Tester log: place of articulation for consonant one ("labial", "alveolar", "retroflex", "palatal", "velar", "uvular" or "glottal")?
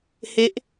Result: glottal